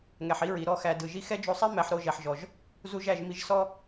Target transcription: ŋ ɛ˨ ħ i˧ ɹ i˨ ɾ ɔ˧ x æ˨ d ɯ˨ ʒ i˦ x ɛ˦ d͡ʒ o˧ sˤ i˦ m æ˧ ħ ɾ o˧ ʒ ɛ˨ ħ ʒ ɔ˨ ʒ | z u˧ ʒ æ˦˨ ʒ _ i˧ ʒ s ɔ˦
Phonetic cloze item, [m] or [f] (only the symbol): m